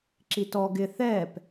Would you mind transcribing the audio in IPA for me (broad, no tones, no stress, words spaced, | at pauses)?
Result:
ǁitɔ ɡɪ θɛːp